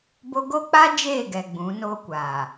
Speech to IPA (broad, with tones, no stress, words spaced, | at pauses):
bo˦ ɡo˦k͡pa˦ d͡ʒeː˦˨ɡɛ˨ ɡ͡bũ˨˦noː˦kʷaː˨